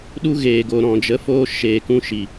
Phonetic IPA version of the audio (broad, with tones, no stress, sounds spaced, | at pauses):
ɗ u˦ ɣ eː˨ ɡ o˨ ɾ ɔ̃˨ d͡ʒ ə˨˦ f oː˧ ʃ eː˨ k ũ˧ ʃ i˨